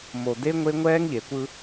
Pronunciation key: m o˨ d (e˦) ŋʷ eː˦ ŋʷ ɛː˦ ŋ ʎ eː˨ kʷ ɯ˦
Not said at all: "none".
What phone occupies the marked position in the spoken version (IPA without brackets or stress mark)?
e˦